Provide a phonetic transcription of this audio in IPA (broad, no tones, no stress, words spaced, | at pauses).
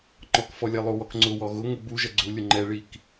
ŋ͡ǃɔkfɔlʲɛ lˠuwɔkŋ͡ǀʊwɔ ɣʊ ŋʊ buʒɐ ɡ͡ǀulʲʊ ŋ͡ǃɛɭik